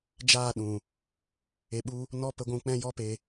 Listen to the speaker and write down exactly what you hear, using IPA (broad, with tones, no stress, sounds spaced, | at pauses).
d͡ʒ aː˦˨ ɗ ũ˨ | e˧ ɓ u˦ | n ɔ˦ p ə˧ ɡʷ ũ˧ k͡p ɛ̃˦ j ɔ˦ p e˧